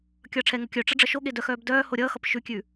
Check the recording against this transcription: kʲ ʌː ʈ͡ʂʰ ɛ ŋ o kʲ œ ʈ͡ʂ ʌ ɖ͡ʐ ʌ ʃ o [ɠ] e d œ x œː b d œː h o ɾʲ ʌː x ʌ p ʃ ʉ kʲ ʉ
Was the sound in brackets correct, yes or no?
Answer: yes